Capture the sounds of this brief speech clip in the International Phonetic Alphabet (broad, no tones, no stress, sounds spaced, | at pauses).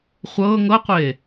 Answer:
χʷ ɤː ŋ ɤ qʷ eː